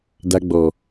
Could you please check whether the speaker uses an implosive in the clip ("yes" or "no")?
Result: no